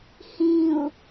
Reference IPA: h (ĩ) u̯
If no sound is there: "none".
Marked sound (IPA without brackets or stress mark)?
ĩ